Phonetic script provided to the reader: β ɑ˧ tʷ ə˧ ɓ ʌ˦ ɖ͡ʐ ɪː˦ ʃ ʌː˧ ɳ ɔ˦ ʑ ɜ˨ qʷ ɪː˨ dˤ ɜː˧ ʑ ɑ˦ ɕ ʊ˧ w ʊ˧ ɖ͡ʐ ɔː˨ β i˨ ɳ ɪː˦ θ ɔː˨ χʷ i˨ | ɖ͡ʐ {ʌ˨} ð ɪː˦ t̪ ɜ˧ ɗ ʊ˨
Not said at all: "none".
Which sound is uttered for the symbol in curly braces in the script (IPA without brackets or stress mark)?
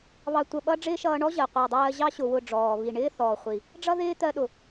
ʌ˦